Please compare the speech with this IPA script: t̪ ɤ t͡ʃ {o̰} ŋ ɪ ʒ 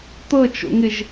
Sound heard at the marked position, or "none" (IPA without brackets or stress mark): o̰